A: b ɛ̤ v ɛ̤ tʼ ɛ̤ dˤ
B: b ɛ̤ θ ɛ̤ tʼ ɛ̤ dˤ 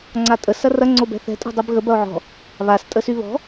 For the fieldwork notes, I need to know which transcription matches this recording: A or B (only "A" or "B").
B